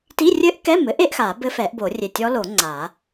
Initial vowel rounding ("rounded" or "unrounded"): unrounded